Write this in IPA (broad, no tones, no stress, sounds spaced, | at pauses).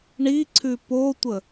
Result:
ɳ i ǀʰ ʉ p o tʷ ə